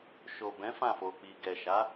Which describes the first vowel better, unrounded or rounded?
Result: rounded